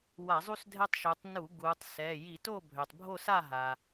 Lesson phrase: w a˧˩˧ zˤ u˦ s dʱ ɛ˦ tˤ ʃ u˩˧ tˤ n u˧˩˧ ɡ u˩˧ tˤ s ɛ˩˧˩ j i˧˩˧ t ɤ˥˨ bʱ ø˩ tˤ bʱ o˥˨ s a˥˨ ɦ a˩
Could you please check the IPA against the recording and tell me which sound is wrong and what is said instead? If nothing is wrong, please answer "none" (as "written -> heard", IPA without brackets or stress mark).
ɤ˥˨ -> o˥˨